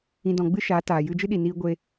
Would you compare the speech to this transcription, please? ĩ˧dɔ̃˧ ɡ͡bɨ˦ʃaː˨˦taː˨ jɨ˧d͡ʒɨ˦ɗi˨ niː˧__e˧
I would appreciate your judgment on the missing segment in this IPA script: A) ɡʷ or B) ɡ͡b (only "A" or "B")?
A